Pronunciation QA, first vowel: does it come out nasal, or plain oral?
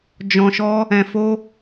nasal